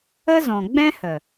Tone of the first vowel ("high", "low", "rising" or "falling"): high